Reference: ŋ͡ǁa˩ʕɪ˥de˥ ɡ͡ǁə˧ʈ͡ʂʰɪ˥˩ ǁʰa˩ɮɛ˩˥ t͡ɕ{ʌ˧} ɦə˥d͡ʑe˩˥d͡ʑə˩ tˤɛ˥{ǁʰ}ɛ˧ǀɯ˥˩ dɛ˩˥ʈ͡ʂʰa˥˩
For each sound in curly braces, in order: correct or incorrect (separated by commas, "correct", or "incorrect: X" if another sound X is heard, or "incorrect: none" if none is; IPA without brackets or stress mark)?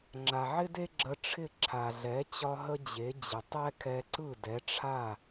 incorrect: ɒ˧, incorrect: kʰ